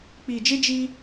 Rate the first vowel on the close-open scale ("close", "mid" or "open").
close